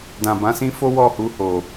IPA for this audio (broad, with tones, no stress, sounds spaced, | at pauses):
d ã˨ b ã˨˦ s ĩ˦ f o˦ w ɔ˦˨ h u˧ h o˨